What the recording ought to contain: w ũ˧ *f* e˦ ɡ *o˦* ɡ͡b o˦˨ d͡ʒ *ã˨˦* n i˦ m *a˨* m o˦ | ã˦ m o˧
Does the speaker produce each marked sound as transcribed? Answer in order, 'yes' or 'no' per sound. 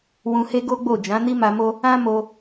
no, yes, yes, no

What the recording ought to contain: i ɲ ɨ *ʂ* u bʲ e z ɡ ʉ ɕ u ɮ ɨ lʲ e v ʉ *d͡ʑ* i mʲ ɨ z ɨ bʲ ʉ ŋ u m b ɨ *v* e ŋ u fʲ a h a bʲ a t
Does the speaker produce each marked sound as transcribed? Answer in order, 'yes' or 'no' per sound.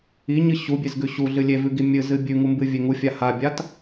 no, no, no

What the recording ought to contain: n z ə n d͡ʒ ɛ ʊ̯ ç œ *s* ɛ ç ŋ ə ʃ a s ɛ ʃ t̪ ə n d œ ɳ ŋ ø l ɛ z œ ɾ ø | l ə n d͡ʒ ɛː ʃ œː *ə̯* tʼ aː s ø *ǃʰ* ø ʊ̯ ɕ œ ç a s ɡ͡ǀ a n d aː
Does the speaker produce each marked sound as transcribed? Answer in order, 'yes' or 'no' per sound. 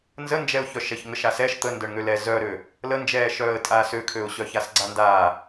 no, yes, no

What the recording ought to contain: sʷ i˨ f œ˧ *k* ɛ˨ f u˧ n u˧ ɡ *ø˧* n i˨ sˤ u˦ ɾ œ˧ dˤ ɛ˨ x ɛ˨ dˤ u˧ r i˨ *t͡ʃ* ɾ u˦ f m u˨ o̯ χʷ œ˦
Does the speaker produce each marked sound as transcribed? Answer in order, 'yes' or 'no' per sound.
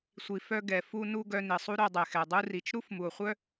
no, no, yes

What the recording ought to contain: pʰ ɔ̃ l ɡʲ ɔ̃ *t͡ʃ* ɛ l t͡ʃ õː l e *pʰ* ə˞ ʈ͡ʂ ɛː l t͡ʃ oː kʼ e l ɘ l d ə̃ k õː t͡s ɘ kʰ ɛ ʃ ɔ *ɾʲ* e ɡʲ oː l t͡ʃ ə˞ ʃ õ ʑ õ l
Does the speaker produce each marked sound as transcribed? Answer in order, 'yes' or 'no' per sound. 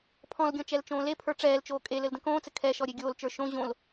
yes, yes, yes

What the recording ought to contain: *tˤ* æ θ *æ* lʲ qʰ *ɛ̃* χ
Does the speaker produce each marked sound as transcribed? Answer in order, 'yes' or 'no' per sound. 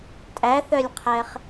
no, no, no

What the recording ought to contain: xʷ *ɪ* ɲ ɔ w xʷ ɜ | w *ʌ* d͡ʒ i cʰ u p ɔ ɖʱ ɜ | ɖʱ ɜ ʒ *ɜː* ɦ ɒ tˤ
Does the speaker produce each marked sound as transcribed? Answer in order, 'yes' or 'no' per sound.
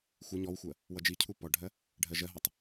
yes, yes, no

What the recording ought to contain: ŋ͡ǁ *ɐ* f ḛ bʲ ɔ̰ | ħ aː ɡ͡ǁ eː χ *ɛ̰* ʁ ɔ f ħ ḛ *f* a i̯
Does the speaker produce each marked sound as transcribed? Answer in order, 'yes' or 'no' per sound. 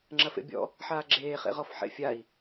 yes, no, no

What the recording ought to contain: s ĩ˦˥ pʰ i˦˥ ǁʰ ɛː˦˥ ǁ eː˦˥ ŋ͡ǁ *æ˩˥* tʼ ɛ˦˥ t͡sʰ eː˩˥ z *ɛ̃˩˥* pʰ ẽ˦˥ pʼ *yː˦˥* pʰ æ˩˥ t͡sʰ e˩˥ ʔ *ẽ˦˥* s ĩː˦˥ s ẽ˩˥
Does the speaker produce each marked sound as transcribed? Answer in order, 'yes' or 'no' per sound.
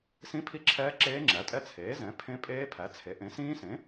yes, yes, no, no

